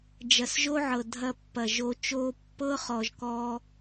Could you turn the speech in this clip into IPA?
d͡ʒɐ˨sʒo˦ʕɤ˨ dʱɐ˧pːɐ˨ʒo˧t͡ʃo˦ pːɤ˦ χɔ˧ʒkɔ˦

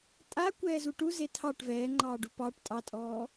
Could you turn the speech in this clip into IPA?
tʼakʷɛːzu ʈuze tʰɑʈ vɛːŋ͡ǃɑːɖu pɑʈ tʼɑtʼɔː

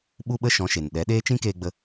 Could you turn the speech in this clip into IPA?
ɓu˦ɓə˦ ʃɔ̃˨˦ʃe˨n ɗɛ˨˦ɗeː˦t͡ʃĩ˦keː˧ ɡ͡bə˦

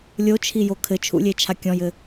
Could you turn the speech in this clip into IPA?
lʲot͡ʃʰijo kʰɘt͡ʃʰṵlʲet͡ʃʰa kʲɔ̃jɘ

